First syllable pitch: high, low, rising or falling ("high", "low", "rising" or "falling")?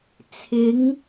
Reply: rising